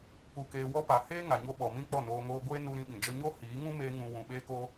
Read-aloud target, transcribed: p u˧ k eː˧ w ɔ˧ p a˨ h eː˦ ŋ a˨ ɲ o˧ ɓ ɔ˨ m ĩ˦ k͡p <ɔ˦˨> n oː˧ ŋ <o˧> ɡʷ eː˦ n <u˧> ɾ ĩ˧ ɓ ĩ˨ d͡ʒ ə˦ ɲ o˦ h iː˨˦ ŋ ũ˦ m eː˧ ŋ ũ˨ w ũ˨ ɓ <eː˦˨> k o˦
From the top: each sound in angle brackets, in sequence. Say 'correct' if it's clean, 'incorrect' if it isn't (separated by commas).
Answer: correct, incorrect, correct, incorrect